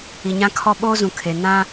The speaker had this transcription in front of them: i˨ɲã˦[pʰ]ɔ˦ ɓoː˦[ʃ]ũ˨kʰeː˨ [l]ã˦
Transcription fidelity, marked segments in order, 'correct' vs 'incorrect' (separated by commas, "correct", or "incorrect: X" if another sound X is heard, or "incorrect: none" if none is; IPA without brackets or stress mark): incorrect: kʰ, incorrect: z, incorrect: n